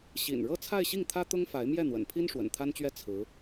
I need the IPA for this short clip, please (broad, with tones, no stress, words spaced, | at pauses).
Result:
ɕḭ˨˩nɻɤ˥˧ t͡sʰa˥˧ɪ̯ɕi˥˩ŋt̪ʰä˥ t̪ʊ˥ŋfa˧˥ɪ̯ mjɛ˥˩n̪wə̰˨˩npʰi˥n ʂwə̰˨˩nt̪ʰa˥nt͡ɕɥɛ˥˩ t͡sʰɹ̩˧˥